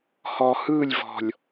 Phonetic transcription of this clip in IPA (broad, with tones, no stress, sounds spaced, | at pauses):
h ɔ˨ h ɯː˦˨ lʲ v ɔ̤˨ lʲ